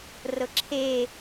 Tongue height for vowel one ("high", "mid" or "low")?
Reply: mid